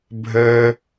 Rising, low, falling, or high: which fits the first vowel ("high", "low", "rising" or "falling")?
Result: high